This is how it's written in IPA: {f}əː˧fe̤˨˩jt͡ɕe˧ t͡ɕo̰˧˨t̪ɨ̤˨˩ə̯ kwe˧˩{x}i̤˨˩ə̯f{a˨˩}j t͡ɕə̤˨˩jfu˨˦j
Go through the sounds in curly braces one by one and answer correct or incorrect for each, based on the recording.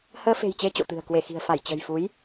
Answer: incorrect, correct, incorrect

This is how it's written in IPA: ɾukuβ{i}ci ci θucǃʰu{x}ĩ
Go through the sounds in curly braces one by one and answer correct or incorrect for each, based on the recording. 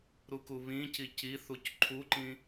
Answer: incorrect, incorrect

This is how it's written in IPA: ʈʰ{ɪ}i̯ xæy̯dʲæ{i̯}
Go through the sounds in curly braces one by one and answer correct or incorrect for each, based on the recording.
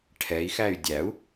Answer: incorrect, incorrect

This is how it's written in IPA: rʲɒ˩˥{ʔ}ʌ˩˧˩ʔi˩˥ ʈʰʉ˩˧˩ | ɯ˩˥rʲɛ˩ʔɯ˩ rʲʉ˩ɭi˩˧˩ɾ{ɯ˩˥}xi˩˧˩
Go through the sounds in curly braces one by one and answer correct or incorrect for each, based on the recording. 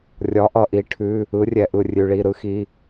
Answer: correct, correct

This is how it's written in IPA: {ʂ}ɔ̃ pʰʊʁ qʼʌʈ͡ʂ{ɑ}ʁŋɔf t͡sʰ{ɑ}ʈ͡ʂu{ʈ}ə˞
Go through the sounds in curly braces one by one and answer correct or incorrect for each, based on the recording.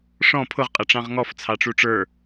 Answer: correct, incorrect, correct, incorrect

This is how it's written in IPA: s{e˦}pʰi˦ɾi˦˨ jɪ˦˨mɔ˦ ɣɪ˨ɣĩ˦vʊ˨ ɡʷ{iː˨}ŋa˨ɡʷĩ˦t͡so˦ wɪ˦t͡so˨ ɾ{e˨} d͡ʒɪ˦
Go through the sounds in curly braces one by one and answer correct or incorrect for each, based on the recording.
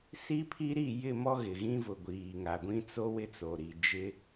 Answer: incorrect, correct, incorrect

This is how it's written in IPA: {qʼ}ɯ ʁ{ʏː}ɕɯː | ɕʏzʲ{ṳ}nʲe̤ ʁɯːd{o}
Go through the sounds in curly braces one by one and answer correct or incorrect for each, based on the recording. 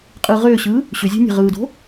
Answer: correct, correct, incorrect, incorrect

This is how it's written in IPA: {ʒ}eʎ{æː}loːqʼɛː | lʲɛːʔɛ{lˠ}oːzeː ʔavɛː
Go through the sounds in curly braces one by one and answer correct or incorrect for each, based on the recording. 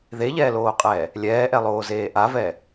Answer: incorrect, incorrect, correct

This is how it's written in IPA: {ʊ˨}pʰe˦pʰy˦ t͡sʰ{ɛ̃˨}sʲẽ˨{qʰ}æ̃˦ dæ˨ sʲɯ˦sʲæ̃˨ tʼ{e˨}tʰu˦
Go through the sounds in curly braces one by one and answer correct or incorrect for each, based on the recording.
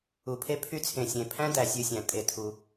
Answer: incorrect, incorrect, incorrect, incorrect

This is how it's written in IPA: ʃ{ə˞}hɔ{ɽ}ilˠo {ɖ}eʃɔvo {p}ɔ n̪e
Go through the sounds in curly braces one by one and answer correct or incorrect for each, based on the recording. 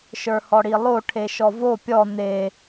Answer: correct, correct, incorrect, incorrect

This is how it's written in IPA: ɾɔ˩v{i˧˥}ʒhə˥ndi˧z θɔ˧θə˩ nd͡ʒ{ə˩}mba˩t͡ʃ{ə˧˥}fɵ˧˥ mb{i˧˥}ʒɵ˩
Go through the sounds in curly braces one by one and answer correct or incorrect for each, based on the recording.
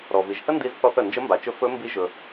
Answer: incorrect, incorrect, incorrect, correct

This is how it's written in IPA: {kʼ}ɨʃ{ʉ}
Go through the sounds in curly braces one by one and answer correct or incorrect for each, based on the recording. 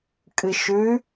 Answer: correct, correct

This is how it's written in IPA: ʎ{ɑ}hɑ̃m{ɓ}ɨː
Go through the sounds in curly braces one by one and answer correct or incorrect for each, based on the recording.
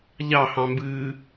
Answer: correct, incorrect

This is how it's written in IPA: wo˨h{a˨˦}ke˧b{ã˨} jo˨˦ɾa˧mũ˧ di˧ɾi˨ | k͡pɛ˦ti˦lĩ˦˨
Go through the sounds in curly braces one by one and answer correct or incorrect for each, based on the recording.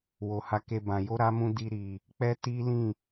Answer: correct, correct

